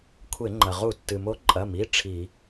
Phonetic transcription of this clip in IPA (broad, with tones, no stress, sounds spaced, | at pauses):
kʷʰ e˧˩˧ ŋ͡ǃ ɐ˩ ʁ u˧˩˧ tː ɨ˩ m o˧˥ ǃʼ ɐ˩˧˩ m i˩˧˩ ʈ͡ʂʰ i˧˩˧